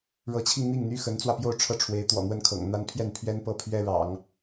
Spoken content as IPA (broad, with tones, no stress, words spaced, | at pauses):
ɻɤ˧˥t͡ɕʰi˧ŋn̪i˥˩ŋ n̪y˥xə˧˥nt͡swä˧pjo˥˧ʊ̯ ʈ͡ʂʰɤ˥˩ʈ͡ʂʰwe˧˥ɪ̯t̪wɔ̰˨˩n̪wə˥˩n kʰɤ̰˨˩ŋ n̪a˥n pʰjɛ˥˩npʰɥɛ˥n pɤ˥˩pʰɥɛ˥ɻɑ̰˨˩˦ŋ